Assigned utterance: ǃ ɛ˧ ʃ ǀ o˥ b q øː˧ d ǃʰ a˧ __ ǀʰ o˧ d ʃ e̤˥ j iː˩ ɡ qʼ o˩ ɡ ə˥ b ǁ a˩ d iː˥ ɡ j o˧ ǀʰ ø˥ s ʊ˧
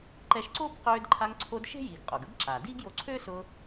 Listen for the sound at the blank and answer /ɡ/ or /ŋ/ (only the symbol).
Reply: ŋ